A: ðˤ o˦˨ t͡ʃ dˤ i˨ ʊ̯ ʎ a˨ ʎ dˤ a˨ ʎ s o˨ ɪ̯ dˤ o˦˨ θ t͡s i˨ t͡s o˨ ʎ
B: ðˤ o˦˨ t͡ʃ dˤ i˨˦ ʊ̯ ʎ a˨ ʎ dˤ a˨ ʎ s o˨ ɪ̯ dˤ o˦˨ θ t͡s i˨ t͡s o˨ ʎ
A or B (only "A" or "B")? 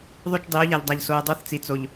B